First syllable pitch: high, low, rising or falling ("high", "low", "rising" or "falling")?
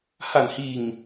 low